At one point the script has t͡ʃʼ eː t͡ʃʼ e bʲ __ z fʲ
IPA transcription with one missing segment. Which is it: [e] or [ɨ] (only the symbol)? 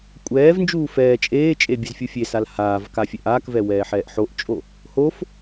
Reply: ɨ